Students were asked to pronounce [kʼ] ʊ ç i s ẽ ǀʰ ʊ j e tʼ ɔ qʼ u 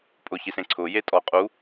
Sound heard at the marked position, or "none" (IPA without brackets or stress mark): pʼ